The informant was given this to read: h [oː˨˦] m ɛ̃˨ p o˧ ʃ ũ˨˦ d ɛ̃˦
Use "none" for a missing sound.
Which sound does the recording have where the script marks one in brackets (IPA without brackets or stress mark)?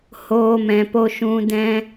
oː˧